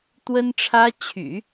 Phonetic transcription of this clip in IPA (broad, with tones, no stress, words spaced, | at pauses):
t̪wə˥nʈ͡ʂʰä˥ t͡ɕʰy̰˨˩˦